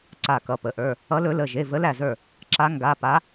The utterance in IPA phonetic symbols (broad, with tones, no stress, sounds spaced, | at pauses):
ǀ a˧˩ k ʌ˩˧˩ p ə˩˧˩ ʔ ə˞˩˧˩ | ʌ˨˦ l ɵ˨˦ l ə˩˧˩ ʒ e˩˧˩ v ə˨˦ l æ˧˩ z ə˞˧˩ | ǁ a˨˦ ŋ ɡ a˩˧˩ p a˨˦